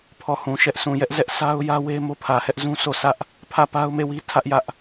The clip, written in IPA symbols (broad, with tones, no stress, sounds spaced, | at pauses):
pʰ ɔ˦˨ h ũ˨ ʃ ɛ˦ ʔ sʰ ũ˨ j ɛ˦ ʔ z ɛ˦ ʔ s a˦ ʊ̯ j ä˦ w e˦ m o˦ pʰ ä˨ h ɛ˦ ʔ z ũ˦ sʰ o˦˨ s ä˦ ʔ | pʰ ä˦˨ p a˦ ʊ̯ m e˦˨ w i˦ tʰ ä˦ ʔ j ä˦ ʔ